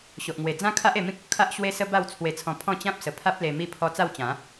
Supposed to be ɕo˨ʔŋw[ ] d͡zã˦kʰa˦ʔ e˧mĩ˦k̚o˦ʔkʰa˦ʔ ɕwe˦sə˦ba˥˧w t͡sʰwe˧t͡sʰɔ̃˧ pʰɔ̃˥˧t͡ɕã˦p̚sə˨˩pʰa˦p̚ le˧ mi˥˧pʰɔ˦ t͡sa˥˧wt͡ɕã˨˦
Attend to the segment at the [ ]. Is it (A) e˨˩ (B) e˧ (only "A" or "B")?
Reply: A